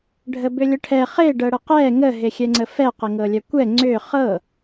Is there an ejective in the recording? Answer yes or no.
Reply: no